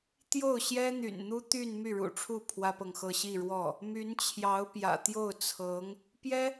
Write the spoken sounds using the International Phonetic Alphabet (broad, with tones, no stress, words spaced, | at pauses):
t̪jo˥˩ʊ̯ ɕjɛ˥n̪y̰˨˩nn̪u˥ t̪y˥˧n my˥˩ɻṵ˨˩ʈ͡ʂʰu˥˩ pʰwä˥pɤ˨ŋxɤ˥˧ ɕi˥˧ɻwɔ˥˩ | my˧˥nt͡ɕʰjɑ˧˥ʊ̯pjä̰˨˩ t̪jo˥˩ʊ̯t͡sʰɤ˧˥ŋ | pjɛ˥